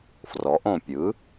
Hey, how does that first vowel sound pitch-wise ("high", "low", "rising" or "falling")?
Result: rising